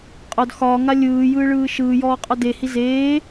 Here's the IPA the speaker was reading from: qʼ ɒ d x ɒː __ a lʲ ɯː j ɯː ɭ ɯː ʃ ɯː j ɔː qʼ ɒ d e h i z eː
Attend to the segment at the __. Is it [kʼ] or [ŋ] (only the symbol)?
ŋ